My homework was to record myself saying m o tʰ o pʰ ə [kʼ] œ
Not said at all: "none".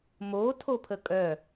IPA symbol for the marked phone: kʼ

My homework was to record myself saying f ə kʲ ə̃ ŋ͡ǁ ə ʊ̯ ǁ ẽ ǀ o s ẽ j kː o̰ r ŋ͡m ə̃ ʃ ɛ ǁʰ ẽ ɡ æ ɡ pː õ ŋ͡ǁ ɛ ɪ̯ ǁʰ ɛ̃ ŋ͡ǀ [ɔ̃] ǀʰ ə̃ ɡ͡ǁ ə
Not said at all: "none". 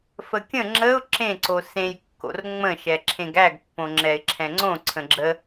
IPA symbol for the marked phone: õ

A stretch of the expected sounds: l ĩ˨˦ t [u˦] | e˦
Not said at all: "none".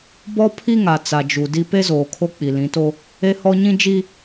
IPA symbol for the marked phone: o˦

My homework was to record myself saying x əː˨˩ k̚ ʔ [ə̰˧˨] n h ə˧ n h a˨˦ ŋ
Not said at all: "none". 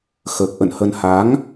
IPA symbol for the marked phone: ə̰˧˨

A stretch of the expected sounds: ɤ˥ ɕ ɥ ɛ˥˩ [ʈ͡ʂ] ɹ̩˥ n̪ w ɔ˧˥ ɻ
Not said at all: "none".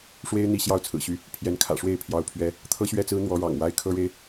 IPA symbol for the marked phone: t͡s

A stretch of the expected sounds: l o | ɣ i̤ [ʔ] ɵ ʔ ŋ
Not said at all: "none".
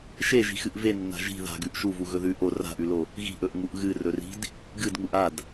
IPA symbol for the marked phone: ʔ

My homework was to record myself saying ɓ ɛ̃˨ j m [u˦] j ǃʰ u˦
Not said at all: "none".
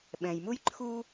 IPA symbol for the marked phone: u˦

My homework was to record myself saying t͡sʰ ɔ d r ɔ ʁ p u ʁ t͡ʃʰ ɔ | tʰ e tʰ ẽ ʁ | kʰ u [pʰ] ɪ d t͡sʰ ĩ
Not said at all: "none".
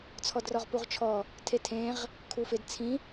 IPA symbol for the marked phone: f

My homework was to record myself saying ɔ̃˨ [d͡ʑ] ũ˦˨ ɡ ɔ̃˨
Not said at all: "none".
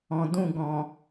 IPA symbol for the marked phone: d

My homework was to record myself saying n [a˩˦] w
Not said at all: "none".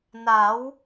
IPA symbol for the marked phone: a˩˦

